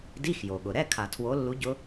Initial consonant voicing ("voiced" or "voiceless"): voiced